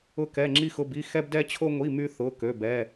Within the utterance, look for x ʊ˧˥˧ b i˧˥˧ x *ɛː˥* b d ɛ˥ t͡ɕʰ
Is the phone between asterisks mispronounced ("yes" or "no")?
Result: yes